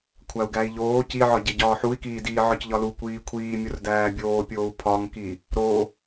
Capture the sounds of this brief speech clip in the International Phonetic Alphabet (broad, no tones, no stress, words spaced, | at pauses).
kʷʰæu̯ɡæi̯ʎoː ciʕɒɟe ɟɒːħui̯kiːdiː ʕɒcʎɒlu kʷiːkʷʰiːmʲor dæːbʲoːpʲoːu̯ pʰɒŋki | ɾo